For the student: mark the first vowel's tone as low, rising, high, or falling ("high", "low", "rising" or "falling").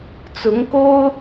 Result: rising